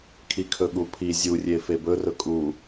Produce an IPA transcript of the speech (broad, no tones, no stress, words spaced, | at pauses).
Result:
kʰikʰɵɠupʰi zʲurʲe febɵrɵ kʼu